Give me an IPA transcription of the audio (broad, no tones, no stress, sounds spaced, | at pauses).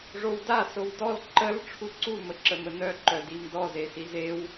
ʐ o w d a s o w d ɔ l ǃ ə l ʈ͡ʂʰ u ǀ u m ə ǁ ə m ə n œ ǃ œ d i m d ɔ z e s i z e w